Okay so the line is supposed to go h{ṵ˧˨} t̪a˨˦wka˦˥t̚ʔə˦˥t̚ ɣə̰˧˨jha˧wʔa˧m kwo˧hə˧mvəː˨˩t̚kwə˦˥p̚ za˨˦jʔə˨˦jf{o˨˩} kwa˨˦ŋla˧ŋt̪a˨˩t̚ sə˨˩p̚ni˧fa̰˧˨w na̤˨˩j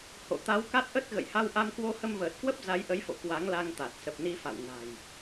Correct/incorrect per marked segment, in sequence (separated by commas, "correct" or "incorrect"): incorrect, incorrect